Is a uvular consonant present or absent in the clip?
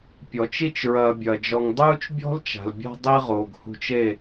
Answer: present